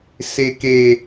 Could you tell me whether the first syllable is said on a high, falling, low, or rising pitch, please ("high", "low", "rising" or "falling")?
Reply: low